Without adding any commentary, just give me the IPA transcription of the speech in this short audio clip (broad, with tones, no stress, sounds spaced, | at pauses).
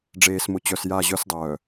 ɖ͡ʐ eː˨ s m ʊ˨ t͡ɕ œ˨ s j a˦˨ ʑ œ˦ s dˤ œː˨